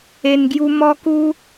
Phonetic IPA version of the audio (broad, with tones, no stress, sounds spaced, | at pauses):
e˧ n ɡ j u˦ m ɔ˦ k u˦